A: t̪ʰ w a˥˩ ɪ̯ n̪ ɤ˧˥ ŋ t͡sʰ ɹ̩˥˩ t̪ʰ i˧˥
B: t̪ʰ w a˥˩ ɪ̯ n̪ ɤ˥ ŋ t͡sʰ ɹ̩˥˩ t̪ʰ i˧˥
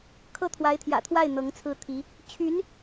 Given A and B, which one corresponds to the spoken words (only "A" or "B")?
A